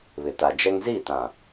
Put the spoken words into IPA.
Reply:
β ɪ˨ t a˨ d͡ʒ ɛ˦ ŋ z i˦˨ t ã˨

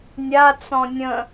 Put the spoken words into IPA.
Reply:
nʲ a t͡s ɔ̃ nʲ ə̃

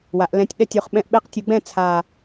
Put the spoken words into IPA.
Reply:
w a˩˧ ʔ l ɛ̃˧ tʲ ɗ ɛ˥˨ tʲ o˩˧ χ ɓ ɛ̃˧ ʔ ɓ e˧˥ q tʲ u˩˧ ɡ͡b ɛ̃˥˨ t͡sʰ a˨˩

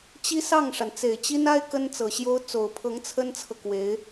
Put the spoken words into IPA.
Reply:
t͡ɕ i˥ s ɑ˥˩ ŋ ʂ a˩ n t͡s e˨˩ ɪ̯ t͡ɕ i˥ n a˥ ɪ̯ k ə˥ n t͡s ɤ˨˩ ɕ j o˥ ʊ̯ t͡s o˨˩ ʊ̯ pʰ ɤ˧˥ ŋ t͡sʰ ə˥ n t͡sʰ ɤ˨ k w e˧˥ ɪ̯

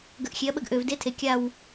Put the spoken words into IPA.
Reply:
ɡ ə˨˩ ʔ xʲ e˩˥ ɐ̯ ɓ ə˧ ɡ ʔ ø˨˩ v d e˧ tʰ e˨˩ kʲ a˥˨ w

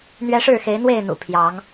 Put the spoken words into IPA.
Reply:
n̪ ɥ ɛ˦ ʂ ɻ̩˥˨ x e˨˦ ɪ̯ n̪ w e˥˨ ɪ̯ n̪ ṵ˨˩ pʰ j ɑ˨˦ ŋ

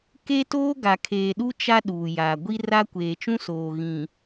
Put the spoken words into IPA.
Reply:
k e˦ t oː˦ ɡ a˨ kʰ eː˨ ɗ u˦ t͡ʃ a˦ ɗ uː˨ j aː˨ ɡʷ i˦ r a˦ kʷ eː˨ t͡ʃ ũ˦ s oː˨ ɣ ĩ˨

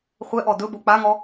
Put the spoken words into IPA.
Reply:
χʷ ɛ ʔ ɔ d ɵ b o k͡p a ŋ ɔ

